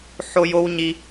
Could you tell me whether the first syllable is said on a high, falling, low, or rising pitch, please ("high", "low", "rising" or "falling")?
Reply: high